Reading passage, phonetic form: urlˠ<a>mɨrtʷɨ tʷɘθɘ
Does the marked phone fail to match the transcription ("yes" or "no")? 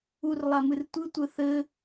no